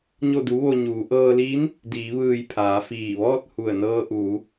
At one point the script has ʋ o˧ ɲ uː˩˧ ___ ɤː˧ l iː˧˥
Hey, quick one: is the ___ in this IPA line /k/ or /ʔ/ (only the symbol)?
ʔ